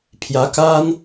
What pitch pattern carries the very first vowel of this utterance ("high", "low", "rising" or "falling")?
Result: rising